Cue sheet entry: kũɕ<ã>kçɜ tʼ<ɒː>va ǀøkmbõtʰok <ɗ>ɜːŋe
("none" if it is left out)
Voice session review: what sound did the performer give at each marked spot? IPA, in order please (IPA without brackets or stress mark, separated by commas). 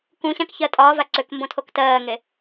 ã, ɒː, t